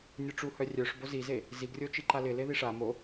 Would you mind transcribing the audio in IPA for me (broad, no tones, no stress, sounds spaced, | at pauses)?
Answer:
nʲ œ ʈ͡ʂ u h œ rʲ œ ʂ b o z i z e | z i ɡ rʲ o t͡ʃ i ǃ a l ɪ l e ð i ʂ a m o